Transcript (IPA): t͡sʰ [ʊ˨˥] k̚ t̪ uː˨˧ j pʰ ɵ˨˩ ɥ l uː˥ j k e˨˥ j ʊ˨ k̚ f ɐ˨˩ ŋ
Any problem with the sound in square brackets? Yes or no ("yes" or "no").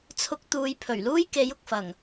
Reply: yes